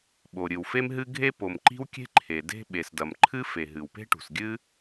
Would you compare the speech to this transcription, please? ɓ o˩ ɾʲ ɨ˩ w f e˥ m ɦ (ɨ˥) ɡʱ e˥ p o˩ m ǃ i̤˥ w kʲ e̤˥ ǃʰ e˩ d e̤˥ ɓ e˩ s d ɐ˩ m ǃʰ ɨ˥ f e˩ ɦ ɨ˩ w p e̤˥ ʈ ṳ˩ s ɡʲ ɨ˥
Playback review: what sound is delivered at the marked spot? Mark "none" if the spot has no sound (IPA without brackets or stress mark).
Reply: ɨ˥